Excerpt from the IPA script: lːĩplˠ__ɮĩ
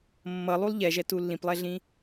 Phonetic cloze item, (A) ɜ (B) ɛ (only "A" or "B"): B